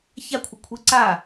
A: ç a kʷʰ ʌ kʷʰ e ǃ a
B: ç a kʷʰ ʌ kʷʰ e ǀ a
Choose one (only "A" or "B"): B